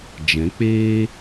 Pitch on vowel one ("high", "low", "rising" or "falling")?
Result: rising